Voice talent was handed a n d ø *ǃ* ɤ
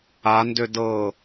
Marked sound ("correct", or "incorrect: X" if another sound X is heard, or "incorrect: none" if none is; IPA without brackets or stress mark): incorrect: d